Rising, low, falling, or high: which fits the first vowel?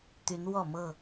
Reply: rising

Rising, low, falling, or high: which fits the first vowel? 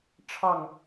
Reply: falling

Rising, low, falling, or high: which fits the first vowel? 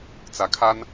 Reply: rising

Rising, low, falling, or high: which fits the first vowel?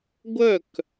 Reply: falling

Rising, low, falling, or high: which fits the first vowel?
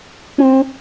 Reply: high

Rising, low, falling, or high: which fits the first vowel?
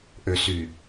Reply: low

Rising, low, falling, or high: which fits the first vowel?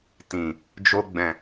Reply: low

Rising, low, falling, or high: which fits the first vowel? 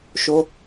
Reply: high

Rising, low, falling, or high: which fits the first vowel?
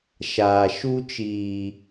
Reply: low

